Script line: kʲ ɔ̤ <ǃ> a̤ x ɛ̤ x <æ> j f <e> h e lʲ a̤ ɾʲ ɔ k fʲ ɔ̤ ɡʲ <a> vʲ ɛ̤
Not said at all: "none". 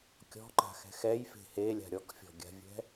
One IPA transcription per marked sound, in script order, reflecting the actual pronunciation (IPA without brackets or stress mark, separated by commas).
ǃ, ɛ, e̤, a̤